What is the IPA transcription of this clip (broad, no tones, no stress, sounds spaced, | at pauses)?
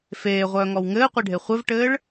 f eː ʁʷ œː ŋ ɔ w ŋ ɘː qʷ e ɖʱ e χʷ ɘ v ʈ ɘː ɭ